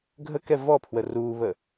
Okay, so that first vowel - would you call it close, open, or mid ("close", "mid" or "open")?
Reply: mid